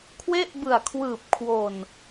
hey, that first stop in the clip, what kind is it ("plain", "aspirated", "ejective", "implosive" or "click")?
aspirated